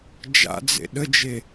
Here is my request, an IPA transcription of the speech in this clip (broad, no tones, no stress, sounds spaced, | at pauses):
d͡ʒ a̰ d͡z ḛ ɗ ə d͡ʒ e